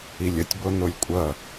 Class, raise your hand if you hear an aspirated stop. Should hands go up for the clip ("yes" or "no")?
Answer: no